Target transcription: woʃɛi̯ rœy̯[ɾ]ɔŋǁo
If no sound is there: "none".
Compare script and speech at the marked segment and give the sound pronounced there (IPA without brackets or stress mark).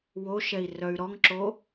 ɾ